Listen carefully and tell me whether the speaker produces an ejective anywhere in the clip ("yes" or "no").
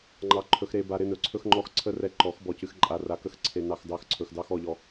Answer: yes